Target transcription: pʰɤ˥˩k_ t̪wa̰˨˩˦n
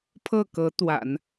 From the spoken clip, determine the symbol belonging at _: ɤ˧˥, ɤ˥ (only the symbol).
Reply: ɤ˧˥